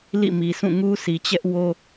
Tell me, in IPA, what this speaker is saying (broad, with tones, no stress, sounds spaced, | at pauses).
l ḭ˦˨ m i˨ s ũ˦˨ ŋ u˦ s i˨ t͡ɕ ɛ˦ ʔ w o˦